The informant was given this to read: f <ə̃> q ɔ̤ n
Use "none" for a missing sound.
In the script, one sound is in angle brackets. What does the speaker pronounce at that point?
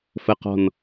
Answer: ə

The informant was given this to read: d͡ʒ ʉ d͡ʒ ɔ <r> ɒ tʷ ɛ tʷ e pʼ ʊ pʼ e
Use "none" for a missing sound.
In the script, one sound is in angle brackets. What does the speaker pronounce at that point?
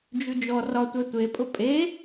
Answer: r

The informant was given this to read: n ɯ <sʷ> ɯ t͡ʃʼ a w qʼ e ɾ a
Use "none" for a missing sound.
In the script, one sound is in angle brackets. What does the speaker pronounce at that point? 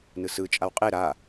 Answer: s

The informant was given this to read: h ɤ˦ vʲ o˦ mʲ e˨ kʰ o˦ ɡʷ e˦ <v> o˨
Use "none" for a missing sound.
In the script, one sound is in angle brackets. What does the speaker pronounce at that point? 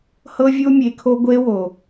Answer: w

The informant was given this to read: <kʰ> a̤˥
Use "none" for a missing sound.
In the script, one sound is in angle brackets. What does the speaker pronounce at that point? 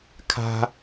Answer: kʰ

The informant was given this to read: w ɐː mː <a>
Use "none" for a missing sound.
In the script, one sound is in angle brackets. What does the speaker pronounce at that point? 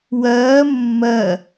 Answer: ɐ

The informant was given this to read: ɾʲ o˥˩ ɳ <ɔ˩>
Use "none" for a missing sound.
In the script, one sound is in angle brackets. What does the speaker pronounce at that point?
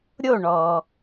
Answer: ɔ˩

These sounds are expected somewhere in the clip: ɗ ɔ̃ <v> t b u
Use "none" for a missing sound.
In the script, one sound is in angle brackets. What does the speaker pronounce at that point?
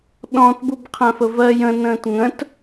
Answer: none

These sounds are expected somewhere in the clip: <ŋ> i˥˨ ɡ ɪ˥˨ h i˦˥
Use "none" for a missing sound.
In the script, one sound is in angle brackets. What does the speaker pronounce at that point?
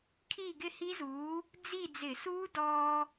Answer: kʰ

